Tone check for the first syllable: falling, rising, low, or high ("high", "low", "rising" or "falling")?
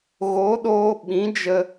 rising